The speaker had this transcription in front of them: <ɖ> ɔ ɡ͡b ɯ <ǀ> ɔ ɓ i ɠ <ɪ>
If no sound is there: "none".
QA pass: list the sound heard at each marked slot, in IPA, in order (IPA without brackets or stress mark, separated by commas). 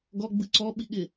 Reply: ɡ, ǀ, ɪ